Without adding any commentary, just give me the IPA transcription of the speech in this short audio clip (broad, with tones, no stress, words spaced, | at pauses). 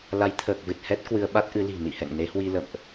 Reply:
la˨˦jt̪ʰəː˨˩k̚vɨ˨˩t̚ hɛ˦˥t̚kwɨ˧ə̯ ɓa˦˥t̚ʔɨ˨˦ li̤˨˩nḭ˧˨hɛ̰˧˨ŋ ne˨˦hwi˧ lə̰˧˨mʔ